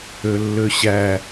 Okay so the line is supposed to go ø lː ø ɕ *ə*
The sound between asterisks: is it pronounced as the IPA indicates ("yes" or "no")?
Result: no